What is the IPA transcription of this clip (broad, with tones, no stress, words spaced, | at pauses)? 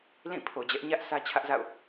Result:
lĩ˦˨ pʰo˨d͡ʑɛ˦ʔ ɲä˦ʔ sä˦t͡ɕʰä˦ʔza̰˦˨ʊ̯